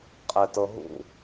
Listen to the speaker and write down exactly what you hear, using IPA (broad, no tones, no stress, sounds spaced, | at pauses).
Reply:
qʼ ɛ t ɤ ɦ ṵ